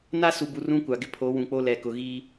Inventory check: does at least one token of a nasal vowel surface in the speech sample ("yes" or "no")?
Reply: yes